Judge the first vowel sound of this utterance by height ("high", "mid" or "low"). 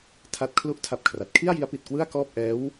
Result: low